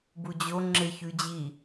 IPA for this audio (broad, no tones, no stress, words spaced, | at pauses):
bud͡ʑo ŋ͡ǁeçʉd͡ʑi